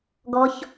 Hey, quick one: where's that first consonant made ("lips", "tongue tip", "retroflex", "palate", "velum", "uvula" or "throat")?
velum